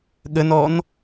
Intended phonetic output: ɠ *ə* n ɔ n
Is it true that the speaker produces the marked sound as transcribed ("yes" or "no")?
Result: yes